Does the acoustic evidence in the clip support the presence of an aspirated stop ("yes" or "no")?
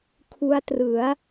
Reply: yes